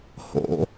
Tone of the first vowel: low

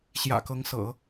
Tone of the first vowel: low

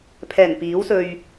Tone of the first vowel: low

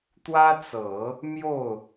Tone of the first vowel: high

